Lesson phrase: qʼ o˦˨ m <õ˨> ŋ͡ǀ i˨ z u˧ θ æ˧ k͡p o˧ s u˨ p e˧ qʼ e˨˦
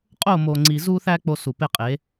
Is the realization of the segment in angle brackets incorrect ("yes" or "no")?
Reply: yes